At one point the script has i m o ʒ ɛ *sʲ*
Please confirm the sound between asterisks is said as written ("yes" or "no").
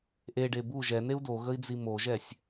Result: yes